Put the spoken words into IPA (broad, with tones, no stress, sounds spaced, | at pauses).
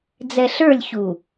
d͡z ɛ˨ ɬ ə˞˦˨ lʲ ç u˨